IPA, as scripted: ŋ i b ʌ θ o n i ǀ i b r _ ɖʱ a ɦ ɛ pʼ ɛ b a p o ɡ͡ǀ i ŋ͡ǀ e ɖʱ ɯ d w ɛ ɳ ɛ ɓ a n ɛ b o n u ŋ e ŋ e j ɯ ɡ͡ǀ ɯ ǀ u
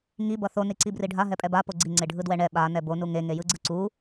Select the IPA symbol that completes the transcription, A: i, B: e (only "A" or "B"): A